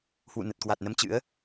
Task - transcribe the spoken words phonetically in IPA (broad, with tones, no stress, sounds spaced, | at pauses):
h w ṵ˧˨ n ə˨˩ t̚ k w a˨˩ t̚ n ə˧ m t͡ɕ ɨ̰˧˥ ə̯